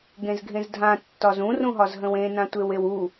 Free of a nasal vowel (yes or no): no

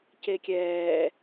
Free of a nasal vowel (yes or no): yes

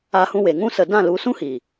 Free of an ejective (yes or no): yes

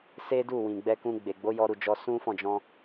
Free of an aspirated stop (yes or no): yes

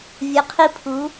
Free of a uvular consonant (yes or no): no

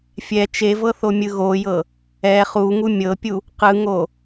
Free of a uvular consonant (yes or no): no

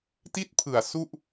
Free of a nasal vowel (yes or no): yes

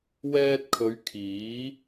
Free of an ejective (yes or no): yes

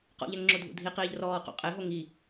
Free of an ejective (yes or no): no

